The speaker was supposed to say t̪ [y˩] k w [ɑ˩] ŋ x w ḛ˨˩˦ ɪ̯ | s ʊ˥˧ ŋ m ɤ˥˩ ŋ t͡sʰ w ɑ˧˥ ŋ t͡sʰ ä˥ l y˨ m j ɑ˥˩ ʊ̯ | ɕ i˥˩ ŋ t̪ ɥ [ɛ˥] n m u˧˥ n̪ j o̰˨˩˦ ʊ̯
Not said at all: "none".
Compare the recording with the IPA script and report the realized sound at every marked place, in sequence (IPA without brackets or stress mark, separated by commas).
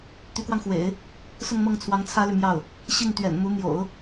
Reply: y˧˥, ɑ˧, ɛ̰˨˩